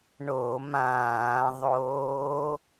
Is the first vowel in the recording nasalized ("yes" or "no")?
no